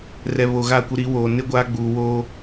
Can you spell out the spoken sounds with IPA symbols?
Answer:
r ɛ˨ β o˨ ɣ a˦˨ kʷ ɪ˦ ɾ i˨˦ w oː˨ n ɪ˦ ɡʷ a˦ ɡ͡b uː˨ w oː˦

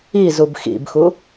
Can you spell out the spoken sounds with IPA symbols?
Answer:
i z u b x ḭ b x u

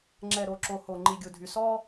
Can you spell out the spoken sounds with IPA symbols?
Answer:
ŋ͡ǁ ɛ˨ ɾ o˨ ǁ o˨ h o˨ ŋ͡ǃ i˨ ɡʲ u˨ dʱ y˨ s ɔ˦

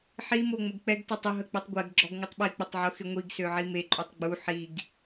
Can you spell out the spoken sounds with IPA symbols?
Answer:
ħ i m o ŋ͡m ə ɡ k͡p ɛ ɡ t ɛ tˤ ʊ ɦ ə k͡p e tˤ ɡʷ ɛ ɡ ɡ͡ǁ ɔ ɡ ŋʷ ə tˤ ɓ i k͡p ʊ tˤ ʕ ʊ x ɪ ŋʷ i ɡ s ø ʕ i m e ǃʼ y tˤ ɡ͡b u ħ i ɡ

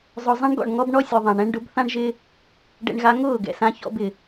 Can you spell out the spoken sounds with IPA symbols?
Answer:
zˤ ʊ˨ zˤ ɛ̃˦ ɳ ɡ ɔ̰˦˨ ɳ ŋ ɔ˦ b ɳ ɔ˦ sʲ ʊ˨ ðˤ ã˨ ɳ ɛ̃˧ ɳ ɖ ʊ˨˦ b θ ã˦ ɳ ʒ ɪ˦ | ɖ ɛ̰˧ ɳ ɣ a˧ ŋ ʊː˦˨ ɡ ɛ̰˨ s ã˧ ç ɔ̰˧ b ɪ˨

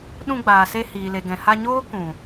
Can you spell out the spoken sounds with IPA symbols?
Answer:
ɗ ũ˧ ɡ͡b aː˨ s e˧ h iː˨ l e˨ ɡ ɛ̃˨ h a˧ ɲ oː˦ k ũ˨

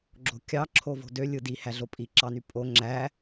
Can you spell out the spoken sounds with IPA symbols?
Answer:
ɡ͡ǁ o̤ kʲ ɑ ǁʰ o v o̤ d ø lʲ ɯ d i h æ ɮ o pʼ i ǁ ɑ n y pʼ o ŋ͡ǁ æ

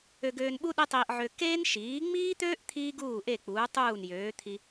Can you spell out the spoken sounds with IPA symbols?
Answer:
ø˧ ɡ øː˧ n ɓ u˥ ɗ e˥ tˤ iː˧ ʔ ʕ ø˧ k eː˥ n ʃ iː˩˥ ŋ͡m iː˥ t̪ øː˥ ʔ t̪ʰ iː˥ ɡ uː˥˩ ʔ e˥˩ k͡p uː˩˥ tˤ uː˥˩ n j øː˩˥ t̪ʰ i˧

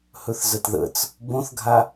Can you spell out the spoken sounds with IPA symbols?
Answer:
h ɵ θ z ə t ð ə̰ t͡s | b õ θ ɡʱ a

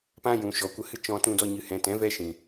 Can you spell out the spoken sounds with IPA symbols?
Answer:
p ã˧ j ũ˨ ʃ ɔ˨ kʷ ə˧ h ɨ˦ t͡ʃ ɔ̃˧ t ũ˧ d ɔ˧ ɲ ɨ˨ h ɛ̃˨ t ɛ̃˨˦ v ɛ˧ ʃ ĩ˨

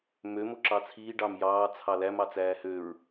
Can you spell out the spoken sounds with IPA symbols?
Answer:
m ø m o ǁ ɑ t͡sʰ iː ɖ ɑ m j ɑː t͡sʰ ɑ l æ m ɑ t͡s æː h ø ɹ

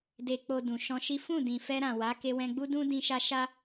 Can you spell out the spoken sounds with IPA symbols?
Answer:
d e˨ k͡p o˨ d ũ˨ ʃ ɔ̃˧ ʃ i˦ f ũ˦˨ d ĩ˨ f ɛ˧ ɾ ã˨ w a˨˦ k e˧ w ɛ̃˧ ɡ͡b u˦ d ũ˦ d ĩ˧ ʃ a˧ ʃ a˦

